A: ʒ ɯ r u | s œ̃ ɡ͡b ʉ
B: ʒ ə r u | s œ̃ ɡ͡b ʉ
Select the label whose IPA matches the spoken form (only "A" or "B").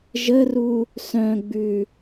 B